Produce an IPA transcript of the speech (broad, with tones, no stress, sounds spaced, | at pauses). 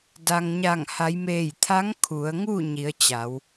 d a˩ ŋ ɲ a˧˩ ŋ h a˩˧ j m eː˧˩ j t̪ʰ a˧˥ ŋ kʰ u˩˧ ə̯ ŋ u˥˨ ɲ i˩˧ ə̯ t͡ɕ a˩˧ w